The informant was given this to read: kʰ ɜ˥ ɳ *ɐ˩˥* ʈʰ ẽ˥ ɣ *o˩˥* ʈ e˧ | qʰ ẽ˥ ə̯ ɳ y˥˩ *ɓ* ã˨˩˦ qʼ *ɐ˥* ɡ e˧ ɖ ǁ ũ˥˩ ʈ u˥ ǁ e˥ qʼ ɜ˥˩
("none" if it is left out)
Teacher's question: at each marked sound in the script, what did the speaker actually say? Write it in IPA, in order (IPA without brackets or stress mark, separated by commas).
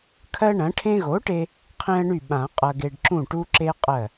ɐ̃˩˥, o˩˥, ɓ, ɐ˧